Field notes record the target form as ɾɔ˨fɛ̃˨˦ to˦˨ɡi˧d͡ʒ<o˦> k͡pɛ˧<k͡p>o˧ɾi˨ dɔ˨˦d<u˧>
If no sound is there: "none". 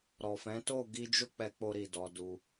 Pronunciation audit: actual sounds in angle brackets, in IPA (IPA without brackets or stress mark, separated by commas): o˦, k͡p, u˧